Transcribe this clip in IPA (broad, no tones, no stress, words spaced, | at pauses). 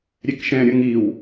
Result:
ɾʲɛkʃɛ̃ ɾʲʌŋiw